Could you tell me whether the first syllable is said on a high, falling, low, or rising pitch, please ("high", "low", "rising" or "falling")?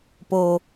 low